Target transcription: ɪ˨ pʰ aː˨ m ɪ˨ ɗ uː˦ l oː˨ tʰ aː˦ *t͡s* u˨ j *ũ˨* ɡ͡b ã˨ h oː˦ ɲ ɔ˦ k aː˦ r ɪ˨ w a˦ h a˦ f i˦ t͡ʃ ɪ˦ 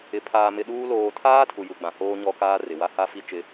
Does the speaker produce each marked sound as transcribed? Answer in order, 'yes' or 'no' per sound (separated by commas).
no, no